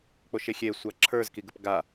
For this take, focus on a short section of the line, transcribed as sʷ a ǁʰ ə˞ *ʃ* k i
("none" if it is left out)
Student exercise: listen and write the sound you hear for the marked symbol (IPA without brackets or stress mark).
z